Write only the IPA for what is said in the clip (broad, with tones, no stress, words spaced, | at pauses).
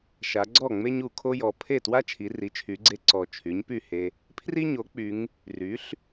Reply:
ʃa˩˧ɡ͡ǀɔ˥˩ ŋ͡me˥ɲu˨˩kʰo˥jɔ˩˧ pʰe˥˩twa˥ t͡ʃʰi˩˧ri˩˥t͡ʃʰy˩˧ɡ͡ǀe˧ ǀɔ˨˩ t͡ʃʰy˩˥ɲpy˥˩he˧ | pʰri˥ɲo˩˥k͡py˩˧ŋ | ry˩˥ɬ